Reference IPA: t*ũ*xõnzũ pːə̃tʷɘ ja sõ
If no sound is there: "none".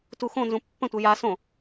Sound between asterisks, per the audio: u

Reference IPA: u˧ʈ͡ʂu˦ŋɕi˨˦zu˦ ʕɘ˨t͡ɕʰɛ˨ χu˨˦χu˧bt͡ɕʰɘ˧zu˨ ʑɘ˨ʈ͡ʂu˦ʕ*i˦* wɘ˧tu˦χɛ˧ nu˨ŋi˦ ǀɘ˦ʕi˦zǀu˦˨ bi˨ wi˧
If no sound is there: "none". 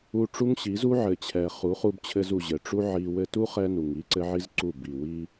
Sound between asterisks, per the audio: i˧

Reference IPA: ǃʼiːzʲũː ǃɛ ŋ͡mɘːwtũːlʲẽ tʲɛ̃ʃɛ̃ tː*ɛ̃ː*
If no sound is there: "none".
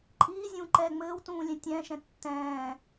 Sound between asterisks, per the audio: ɛ̃ː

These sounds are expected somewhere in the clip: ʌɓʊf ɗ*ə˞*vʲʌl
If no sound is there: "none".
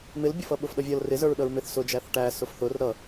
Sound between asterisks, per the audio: ʌ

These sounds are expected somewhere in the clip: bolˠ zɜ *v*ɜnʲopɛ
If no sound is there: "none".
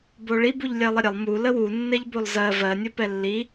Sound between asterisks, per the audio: v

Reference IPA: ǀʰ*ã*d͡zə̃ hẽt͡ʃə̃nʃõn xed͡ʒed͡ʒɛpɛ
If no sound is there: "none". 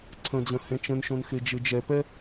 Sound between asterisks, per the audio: ə̃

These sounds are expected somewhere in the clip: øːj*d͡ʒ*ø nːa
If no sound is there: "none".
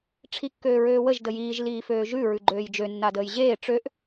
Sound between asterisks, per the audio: d͡ʒ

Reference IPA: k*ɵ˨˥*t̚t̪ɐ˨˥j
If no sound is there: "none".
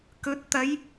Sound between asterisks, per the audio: ɵ˨˥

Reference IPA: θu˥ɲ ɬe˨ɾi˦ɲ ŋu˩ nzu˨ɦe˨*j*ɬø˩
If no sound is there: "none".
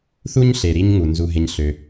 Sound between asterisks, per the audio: ɲ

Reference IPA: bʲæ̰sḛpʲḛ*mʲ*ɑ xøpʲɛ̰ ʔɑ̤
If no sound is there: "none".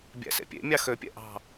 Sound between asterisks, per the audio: mʲ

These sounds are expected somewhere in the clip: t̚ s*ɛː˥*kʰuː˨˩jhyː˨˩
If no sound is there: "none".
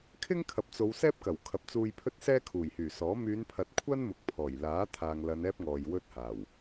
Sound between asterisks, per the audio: ɛː˥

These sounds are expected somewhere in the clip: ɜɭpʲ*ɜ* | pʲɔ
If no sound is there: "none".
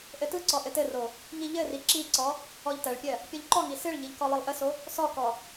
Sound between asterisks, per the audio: ɜ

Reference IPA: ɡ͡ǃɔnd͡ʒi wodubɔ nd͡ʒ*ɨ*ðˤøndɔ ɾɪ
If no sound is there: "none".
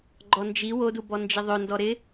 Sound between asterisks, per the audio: ɪ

